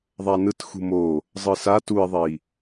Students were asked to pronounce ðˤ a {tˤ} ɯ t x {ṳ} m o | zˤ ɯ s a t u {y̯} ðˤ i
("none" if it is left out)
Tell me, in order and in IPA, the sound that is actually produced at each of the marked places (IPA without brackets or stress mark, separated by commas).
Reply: n, ṳ, i̯